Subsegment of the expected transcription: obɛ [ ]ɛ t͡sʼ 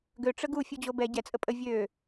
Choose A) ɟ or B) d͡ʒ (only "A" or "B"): A